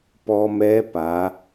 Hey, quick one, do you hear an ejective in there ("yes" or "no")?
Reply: no